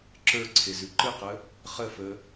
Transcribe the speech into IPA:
ǁə˞ǀʰezʉ ǃɨqə | χəfə

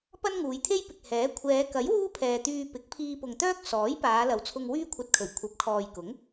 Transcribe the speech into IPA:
pɐ˥nŋuː˨˧jt̪ʰe˥jpɪ˨k̚ hɛː˨˥ kʷʰɛː˨˧kɐ˨˥j wuː˥pʰɛː˨t̪yː˧ pɪ˨˥k̚ pʰiː˧pʊ˨ŋt̪œː˥k̚ sɔː˨˥jpaː˨˧ lɐ˨˧wt͡sʰʊ˧ŋ wyː˥kʷʰɐ˧t̚kʰɵ˨˩ɥ kʷʰɐ˨˥p̚kʰɔː˨jkʊ˨˥ŋ

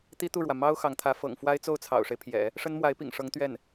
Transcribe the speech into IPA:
t̪i˥t̪u˥˩ɻwä˩ mɑ˥ʊ̯ xɑ˧˥ŋt̪ʰä˧˥ fɤ̰˨˩ŋfwa˥ɪ̯ t͡so˥˩ʊ̯t͡sʰɑ̰˨˩ʊ̯ʂe˦ɪ̯pʰjɛ̰˨˩˦ | ʂə˥nmwa˧˥ɪ̯pḭ˨˩ŋʂɤ˧˥ŋ t̪ɥɛ˥˩n

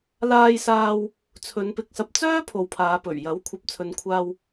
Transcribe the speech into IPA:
laː˧jsaː˧w | t͡sʰɵ˨˧npɪ˧k̚sɐ˧p̚ t͡sœː˥ pʰo˨wpʰaː˨˧pɵ˨˩ɥjɐ˨˥w kʷʰɐ˨p̚t͡sʰɵ˨nkʷʰaː˧w

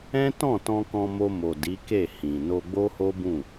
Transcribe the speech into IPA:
ɛ̃˦tɔ̃˦˨tɔ̃˧kɔ̃˧ mo˧mo˨ di˨˦ke˦˨hĩ˨ no˧ɡ͡bo˦ho˦bũ˦˨

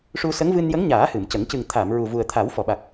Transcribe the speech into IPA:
ʂu˧sə˧˥ŋ vɨ˧njə˧˥ŋɲaː˨˩˦ hɨ˨˩˨mcə˨˩˦ŋ cɨ˨˩ŋt̪ʰa˨˩˨m ɹu˨˩vu˨˩ə̯t̪ʰa˨˩˦w fɔ˨˩˨ɓa˨˩k̚

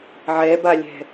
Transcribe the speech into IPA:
ʕɛbalʲɛ̤

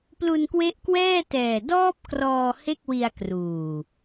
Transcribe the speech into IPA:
plu˧nkwe˦˥ʔkwɛː˥˩tɛː˨˩ dɔː˦˥p̚ krɔː˧ he˥˩k̚wi˧a̯kruː˨˩

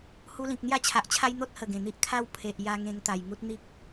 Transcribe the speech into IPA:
hu˧lĩ˨k̚ n̪ja˥˧t͡ɕʰa˨ʔt͡ɕʰa˦j n̪o˦t̚hə˨˩ ɡẽ˨˩n̪i˦ʔ kʰa˦w pʰe˨ʔja˧ ŋẽ˧ŋt̪a˨˩jŋu˦t̚ n̪i˦k̚

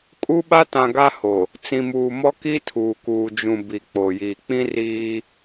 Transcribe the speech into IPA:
kʼu˦ɓa˦tã˨ ɡa˦ho˨ | t͡sĩ˨muː˨mɔ˦ ki˦ tʰuː˨kuː˨d͡ʒũ˨ bi˨k͡po˨jiː˨ k͡pĩ˦ riː˦

